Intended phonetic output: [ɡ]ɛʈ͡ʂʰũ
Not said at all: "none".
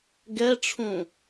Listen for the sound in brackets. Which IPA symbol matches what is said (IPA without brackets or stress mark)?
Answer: ɡ